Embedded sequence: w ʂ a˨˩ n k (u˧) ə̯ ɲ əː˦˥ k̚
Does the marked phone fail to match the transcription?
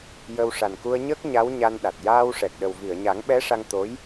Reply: no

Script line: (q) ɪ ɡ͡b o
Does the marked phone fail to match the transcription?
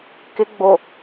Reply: yes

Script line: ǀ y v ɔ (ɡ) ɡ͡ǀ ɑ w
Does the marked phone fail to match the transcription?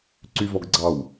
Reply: no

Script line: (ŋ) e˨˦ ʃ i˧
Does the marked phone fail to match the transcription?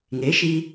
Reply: no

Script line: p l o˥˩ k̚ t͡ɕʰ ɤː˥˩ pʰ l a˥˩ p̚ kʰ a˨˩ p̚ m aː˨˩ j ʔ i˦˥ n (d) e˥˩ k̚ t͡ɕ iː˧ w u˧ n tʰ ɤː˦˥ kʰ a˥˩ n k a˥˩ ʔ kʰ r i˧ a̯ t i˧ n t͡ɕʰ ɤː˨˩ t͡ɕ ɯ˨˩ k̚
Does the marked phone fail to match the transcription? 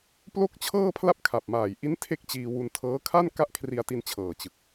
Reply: yes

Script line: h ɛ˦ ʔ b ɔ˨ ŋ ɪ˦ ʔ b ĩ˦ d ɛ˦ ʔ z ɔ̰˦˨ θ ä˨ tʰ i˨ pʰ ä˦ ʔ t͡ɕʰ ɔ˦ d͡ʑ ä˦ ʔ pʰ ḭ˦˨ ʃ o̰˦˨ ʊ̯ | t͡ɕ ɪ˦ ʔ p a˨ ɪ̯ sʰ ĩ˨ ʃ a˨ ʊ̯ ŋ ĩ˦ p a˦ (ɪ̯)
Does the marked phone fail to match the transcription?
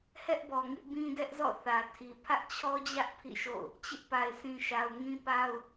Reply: yes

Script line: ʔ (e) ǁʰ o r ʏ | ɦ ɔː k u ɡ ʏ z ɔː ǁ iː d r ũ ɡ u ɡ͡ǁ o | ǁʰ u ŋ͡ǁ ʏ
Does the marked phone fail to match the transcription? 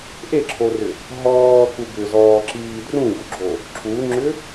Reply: no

